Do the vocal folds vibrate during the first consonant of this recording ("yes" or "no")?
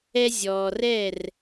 yes